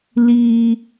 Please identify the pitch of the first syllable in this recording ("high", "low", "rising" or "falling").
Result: low